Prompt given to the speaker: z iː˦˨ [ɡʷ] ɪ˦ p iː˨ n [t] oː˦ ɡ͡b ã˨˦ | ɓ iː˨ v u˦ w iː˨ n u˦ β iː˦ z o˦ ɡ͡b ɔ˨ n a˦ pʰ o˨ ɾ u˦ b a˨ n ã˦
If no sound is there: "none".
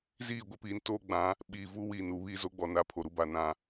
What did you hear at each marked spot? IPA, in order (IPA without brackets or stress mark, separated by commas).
ɡʷ, t